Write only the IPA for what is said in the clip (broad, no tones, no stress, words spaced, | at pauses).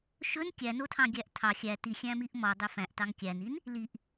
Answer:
ʃɵn kʲænotʰɑ̃ ɡʲæʔtʰɑ xʲæ ti xʲæ̃miʔmɔ dˤøfæ̃ʔtɑŋ kʲænin | liʔ